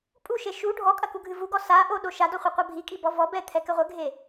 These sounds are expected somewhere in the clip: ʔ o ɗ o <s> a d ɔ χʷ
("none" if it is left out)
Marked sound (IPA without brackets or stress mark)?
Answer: ʃ